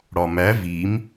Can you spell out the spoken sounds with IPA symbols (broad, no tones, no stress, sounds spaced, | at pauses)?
ɽ ɒ m æ v i m